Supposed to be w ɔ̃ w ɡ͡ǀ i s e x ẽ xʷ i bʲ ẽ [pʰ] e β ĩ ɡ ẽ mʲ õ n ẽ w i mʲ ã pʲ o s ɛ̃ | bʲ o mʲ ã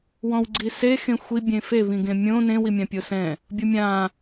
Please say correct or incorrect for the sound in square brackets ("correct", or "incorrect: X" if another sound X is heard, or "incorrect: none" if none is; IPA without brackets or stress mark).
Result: incorrect: f